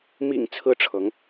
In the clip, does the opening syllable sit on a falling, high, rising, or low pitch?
low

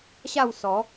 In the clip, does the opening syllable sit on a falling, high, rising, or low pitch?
falling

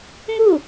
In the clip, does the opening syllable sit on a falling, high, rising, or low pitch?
falling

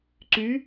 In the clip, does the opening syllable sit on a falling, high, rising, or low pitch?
rising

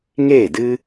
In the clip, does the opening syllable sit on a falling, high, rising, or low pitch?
falling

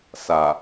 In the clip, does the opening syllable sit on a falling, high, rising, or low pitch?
low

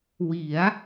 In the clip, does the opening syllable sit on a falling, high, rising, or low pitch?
rising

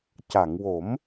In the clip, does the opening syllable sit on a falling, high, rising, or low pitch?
low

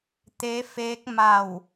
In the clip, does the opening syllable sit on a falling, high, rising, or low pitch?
rising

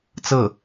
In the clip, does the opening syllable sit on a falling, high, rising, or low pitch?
falling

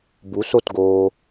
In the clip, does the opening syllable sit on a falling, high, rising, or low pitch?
rising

